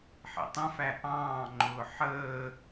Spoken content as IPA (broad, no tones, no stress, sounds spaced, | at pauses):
ħ ḭ tˤ ə̃ f æ ʔ ɑ̃ː ŋ͡ǃ ʊː ħ əː